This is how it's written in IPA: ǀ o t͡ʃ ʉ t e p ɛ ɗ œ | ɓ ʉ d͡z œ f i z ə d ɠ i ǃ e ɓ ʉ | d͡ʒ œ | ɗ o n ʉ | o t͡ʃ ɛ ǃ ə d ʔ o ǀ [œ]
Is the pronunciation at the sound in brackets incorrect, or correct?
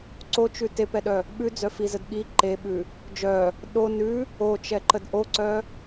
correct